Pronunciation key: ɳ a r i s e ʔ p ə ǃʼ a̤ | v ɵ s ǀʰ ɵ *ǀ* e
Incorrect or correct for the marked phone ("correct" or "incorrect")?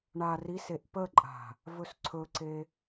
correct